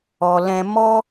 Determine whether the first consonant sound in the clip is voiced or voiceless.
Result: voiced